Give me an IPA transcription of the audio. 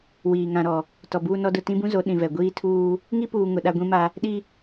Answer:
w iː˨ ŋ ã˨ ɾ ɔ˨ | t ɔ˨ b uː˦ n ɔ˦ d ʊ˦˨ t ĩ˦ b ũ˦ z o˨˦ ɗ ĩ˨ v ɛ˨ ɡʷ iː˦ tʰ uː˦ | ŋ i˦ p uː˨ ŋ ʊ˨ ɗ a˦ ɡʷ ĩ˦ m a˦ | ɗ i˦

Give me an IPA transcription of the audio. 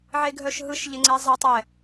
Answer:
ʕ e ɡʱ œ ʃ ɦ ɯ ʃ ʎ ɪ ŋ͡ǀ ɛ zˤ ɘ tˤ ɛ

